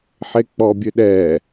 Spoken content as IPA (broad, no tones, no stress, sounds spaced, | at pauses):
ħ e k͡p ɔ bʲ ø ɗ ɛ